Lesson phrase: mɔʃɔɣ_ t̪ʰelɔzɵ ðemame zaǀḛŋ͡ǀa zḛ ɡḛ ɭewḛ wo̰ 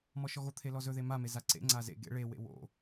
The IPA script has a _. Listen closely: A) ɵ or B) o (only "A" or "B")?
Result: B